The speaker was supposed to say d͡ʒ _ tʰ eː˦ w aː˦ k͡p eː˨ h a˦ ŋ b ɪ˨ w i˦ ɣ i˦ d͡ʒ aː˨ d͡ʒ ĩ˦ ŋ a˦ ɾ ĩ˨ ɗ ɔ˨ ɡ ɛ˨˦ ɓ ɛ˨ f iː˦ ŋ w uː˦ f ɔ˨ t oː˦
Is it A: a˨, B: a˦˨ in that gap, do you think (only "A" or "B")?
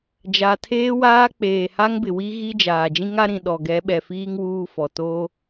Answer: A